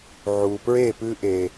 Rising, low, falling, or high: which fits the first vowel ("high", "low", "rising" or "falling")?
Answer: low